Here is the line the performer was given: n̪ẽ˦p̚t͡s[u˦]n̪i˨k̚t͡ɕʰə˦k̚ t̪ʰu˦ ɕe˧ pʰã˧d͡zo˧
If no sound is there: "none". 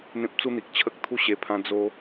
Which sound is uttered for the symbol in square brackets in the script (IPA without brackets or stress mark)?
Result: u˦